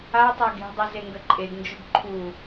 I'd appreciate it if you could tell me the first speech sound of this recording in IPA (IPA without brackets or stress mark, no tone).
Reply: a